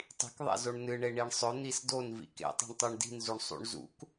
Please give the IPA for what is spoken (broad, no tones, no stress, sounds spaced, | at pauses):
tˤ i̤ k ðˤ ḛ z o ɳ n ɨ ɳ e ɳ i ɳ sˤ ɵ n̪ i s d o n v ḭ k ḛ tˤ i̤ ɳ tˤ o ɳ d i̤ n z u ɳ sˤ ṵ ɳ z ṵ k